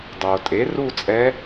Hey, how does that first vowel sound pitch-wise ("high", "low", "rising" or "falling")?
low